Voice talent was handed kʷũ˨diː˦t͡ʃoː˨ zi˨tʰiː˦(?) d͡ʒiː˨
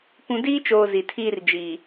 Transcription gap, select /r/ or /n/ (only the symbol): r